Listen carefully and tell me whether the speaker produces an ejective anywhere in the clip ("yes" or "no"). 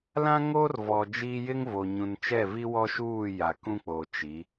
no